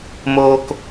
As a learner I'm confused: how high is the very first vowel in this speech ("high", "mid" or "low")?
mid